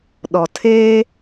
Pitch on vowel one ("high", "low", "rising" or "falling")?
low